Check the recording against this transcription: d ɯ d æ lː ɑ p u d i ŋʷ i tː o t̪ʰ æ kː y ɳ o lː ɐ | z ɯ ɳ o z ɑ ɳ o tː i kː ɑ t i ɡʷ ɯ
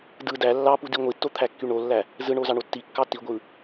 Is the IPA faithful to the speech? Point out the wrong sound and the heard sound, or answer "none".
ɐ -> æ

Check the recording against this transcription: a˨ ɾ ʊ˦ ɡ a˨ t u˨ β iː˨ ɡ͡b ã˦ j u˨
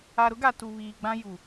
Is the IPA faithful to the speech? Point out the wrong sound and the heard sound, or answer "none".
none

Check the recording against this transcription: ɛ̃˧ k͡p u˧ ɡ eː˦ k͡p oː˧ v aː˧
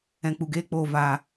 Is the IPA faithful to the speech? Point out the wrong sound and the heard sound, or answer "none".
none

